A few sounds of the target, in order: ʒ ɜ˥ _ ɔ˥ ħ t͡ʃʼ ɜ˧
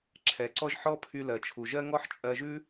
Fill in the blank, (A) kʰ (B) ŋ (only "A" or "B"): B